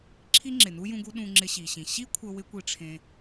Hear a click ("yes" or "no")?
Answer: yes